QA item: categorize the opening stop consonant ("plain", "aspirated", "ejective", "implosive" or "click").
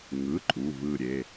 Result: click